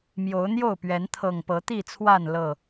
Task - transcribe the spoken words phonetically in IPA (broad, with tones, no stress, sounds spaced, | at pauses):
m j o˨˦ ʊ̯ n̪ j o˥˨ ʊ̯ p ɥ ɛ˨˦ n t̪ʰ ɤ˨˩ ŋ p ɤ˨˦ t̪ i˥˨ t͡sʰ w a˥˨ n l ɤ˥˨